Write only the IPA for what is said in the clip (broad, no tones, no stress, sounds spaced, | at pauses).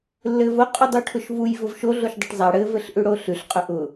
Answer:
lː ɘ v ʊ qʼ u dˤ u ʈʰ ʊ ʃ v u j v ʊ v ʃ o ɮ o ʃ dˤ ʊ ʈ zˤ a ɽ ɘ v ɘ ɬ ʔ ʉ ɽ o ɬ ʉ ɬ qʼ ɵ ʔ ʊ